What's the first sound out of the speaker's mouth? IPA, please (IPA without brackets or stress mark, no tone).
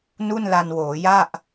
n